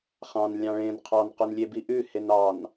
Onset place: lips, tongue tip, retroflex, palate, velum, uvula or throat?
uvula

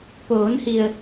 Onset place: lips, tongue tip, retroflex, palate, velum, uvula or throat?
lips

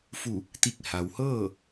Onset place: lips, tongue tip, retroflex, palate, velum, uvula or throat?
lips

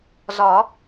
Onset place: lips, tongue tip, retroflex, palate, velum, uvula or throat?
tongue tip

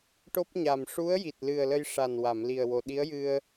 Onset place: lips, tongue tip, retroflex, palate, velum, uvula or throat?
retroflex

